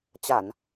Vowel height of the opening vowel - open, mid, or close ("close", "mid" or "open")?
open